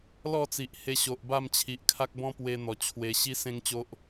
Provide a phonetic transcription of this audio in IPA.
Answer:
l ɔ˥˧ t͡s i˨ ʔ h e˧ ɕ o˨ ʔ b a˥˧ m t͡ɕʰ i˨ ʔ kʰ a˦ k̚ b ɔ̃˦ p w e˧ n̪ ɔ˨˩ t͡ɕʰ w e˧ ɕ i˦ s ẽ˦ ŋ t͡ɕ o˦ ʔ

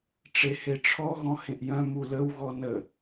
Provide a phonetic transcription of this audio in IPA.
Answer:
ʈ͡ʂ e h e ʈ͡ʂʰ ɔ ɣ ɔ̃ h ẽ ʔ j œ̃ m u l ə w ɣ ɔ n ə

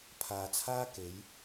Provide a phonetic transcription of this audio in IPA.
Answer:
pʰ aː˨ t͡sʰ aː˥ k e˨˥ j

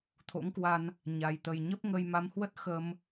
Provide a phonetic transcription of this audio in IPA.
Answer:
t̪ʰ o̰˧˥ ŋ k w a˧ n | ɲ a˨˩ j t̪ ə˨˩ j ɲ ə˦˥ p̚ ŋ ə˧ j m a˨˦ m h w ə˦˥ t̚ x ə˧ m

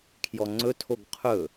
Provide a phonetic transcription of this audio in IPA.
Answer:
kʰ j ɔ ŋ͡ǀ ɵ tʰ o ɡ qʰ ɵ

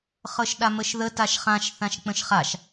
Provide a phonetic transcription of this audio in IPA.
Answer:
χ ɤ ʃ ɗ a m ə ʃ ð ə t a ʃ χ ã ʃ θ ã ʃ k͡p ə̃ ʃ χ a ʃ

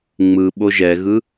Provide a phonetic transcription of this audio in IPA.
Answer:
ŋ͡m ɯ ɓ o ʒ ɛ ɣ ɯ

